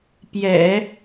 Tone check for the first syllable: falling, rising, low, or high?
low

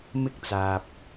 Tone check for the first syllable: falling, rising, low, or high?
high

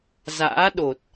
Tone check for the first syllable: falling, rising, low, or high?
rising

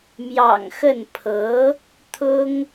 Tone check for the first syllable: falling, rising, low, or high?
low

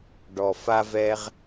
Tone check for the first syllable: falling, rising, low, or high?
low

